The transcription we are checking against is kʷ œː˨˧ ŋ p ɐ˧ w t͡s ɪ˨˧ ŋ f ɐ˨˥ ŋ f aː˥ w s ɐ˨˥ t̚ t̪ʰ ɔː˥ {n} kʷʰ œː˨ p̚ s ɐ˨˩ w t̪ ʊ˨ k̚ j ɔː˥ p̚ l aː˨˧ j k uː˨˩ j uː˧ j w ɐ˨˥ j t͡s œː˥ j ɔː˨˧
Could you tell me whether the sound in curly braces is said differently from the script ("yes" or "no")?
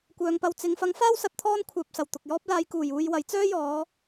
no